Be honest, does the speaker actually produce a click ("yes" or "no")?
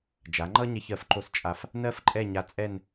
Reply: yes